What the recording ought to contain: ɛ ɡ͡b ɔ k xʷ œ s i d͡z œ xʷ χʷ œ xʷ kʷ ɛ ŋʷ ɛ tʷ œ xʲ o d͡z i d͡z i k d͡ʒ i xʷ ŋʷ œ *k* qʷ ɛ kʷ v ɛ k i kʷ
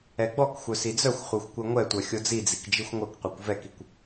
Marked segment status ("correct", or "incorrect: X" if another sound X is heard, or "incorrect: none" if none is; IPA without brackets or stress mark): correct